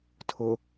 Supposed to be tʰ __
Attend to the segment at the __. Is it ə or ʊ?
ʊ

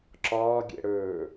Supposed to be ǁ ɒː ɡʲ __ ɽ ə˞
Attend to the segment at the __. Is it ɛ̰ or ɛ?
ɛ̰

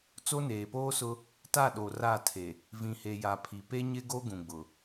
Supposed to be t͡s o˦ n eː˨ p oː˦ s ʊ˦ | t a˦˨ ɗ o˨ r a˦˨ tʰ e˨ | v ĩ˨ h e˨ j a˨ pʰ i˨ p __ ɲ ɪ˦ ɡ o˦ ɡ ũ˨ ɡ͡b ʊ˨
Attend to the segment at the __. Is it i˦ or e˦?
e˦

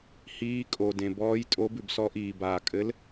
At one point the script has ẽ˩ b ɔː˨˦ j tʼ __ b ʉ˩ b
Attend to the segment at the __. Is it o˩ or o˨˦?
o˨˦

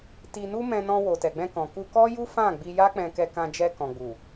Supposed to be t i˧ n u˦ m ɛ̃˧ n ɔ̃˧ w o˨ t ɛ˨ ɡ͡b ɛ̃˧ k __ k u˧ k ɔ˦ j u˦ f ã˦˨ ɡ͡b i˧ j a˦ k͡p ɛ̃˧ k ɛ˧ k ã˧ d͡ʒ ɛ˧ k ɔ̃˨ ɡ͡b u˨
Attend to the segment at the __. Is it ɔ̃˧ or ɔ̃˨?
ɔ̃˨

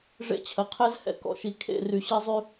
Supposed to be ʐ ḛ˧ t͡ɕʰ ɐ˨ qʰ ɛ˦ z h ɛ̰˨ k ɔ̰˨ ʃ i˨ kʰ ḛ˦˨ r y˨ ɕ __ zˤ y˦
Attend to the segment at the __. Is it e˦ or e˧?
e˦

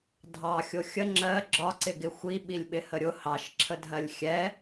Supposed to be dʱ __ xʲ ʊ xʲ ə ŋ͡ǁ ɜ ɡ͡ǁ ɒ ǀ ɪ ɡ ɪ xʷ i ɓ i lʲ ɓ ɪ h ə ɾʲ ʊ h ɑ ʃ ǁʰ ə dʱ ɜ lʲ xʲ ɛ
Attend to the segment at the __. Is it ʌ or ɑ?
ɑ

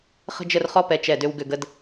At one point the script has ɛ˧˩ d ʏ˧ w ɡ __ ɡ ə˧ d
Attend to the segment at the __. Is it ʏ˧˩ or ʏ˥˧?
ʏ˧˩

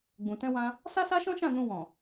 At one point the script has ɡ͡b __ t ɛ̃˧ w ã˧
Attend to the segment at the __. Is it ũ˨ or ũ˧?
ũ˨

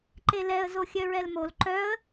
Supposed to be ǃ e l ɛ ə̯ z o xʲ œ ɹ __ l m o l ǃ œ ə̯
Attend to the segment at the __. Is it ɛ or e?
ɛ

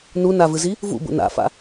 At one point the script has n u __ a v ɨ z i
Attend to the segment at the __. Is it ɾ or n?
n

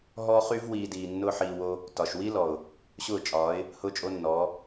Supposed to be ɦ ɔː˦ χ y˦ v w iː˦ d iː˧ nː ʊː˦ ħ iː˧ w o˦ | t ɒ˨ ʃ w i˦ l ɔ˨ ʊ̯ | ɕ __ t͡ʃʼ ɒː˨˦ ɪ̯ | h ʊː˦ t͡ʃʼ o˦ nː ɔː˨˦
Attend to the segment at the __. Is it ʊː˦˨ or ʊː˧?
ʊː˦˨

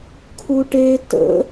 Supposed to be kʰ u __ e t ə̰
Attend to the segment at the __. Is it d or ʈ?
ʈ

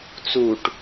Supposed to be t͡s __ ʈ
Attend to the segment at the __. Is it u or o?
u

